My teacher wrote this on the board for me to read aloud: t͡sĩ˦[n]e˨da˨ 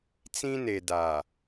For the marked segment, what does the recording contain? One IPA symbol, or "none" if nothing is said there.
n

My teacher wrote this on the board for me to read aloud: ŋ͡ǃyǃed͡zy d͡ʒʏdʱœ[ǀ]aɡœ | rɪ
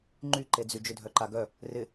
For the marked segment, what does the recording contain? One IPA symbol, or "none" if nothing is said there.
ǃ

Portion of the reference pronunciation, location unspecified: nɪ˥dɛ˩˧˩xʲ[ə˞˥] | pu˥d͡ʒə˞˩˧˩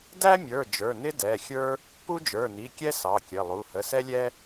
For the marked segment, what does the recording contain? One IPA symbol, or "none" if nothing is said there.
ə˞˥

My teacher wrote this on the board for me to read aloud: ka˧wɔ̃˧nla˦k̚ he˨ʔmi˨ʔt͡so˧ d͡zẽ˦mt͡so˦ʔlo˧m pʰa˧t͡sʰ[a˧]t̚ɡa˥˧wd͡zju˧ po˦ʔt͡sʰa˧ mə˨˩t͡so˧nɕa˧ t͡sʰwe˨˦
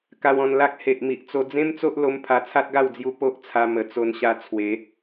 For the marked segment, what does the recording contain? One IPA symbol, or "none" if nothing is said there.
a˦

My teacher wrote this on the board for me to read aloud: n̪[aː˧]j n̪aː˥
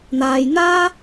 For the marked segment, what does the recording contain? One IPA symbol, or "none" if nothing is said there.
aː˧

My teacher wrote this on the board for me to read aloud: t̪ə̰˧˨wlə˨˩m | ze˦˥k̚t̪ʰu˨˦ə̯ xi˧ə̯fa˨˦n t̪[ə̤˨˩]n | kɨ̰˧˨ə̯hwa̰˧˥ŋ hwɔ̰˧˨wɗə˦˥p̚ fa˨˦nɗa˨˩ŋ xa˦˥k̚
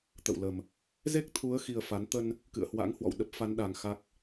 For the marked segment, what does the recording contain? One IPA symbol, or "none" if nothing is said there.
ə˧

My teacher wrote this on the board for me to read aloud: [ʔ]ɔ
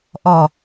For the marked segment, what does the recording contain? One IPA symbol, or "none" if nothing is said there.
ʔ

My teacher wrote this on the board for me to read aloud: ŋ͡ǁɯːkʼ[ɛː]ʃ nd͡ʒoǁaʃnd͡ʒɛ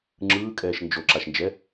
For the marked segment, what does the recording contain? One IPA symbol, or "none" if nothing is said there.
ɛː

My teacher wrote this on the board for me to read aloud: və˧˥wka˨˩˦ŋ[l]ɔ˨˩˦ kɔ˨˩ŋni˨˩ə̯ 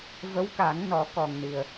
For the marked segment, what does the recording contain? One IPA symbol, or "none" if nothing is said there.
n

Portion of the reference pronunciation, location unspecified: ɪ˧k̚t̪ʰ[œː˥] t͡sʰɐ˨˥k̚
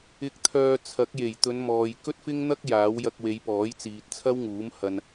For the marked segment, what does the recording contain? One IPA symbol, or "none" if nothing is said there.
œː˧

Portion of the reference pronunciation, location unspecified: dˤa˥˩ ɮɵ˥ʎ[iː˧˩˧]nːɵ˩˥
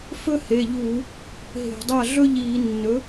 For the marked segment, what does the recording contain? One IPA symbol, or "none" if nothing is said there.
iː˧˩˧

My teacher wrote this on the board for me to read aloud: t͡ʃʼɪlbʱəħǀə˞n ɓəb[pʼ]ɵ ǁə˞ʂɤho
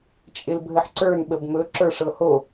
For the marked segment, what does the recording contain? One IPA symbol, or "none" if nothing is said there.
m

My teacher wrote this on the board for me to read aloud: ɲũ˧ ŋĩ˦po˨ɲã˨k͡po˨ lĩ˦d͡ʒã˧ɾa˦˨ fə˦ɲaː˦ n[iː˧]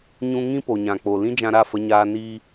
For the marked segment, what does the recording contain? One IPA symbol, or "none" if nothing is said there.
iː˧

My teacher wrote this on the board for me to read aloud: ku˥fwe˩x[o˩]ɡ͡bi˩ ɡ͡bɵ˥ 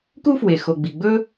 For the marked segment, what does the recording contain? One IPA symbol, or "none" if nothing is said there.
o˩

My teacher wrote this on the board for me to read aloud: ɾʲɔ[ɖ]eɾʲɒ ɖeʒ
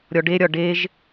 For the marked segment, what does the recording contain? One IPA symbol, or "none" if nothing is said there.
ɖ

